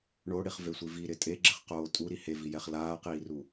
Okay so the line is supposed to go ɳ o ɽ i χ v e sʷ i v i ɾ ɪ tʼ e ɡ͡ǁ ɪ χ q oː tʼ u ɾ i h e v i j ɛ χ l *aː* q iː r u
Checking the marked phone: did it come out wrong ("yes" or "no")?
no